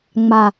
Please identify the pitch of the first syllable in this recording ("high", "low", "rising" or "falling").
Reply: low